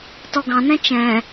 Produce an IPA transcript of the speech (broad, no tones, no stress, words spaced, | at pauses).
tɔɡɑ̃nɛ̃ t͡ʃɛ̃